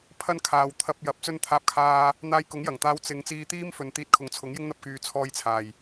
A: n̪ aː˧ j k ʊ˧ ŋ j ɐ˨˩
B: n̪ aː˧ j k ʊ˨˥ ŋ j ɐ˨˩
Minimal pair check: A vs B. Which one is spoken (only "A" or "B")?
B